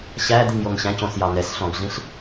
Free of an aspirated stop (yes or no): yes